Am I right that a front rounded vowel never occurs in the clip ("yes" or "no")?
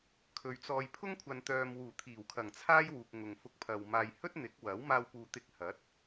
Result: no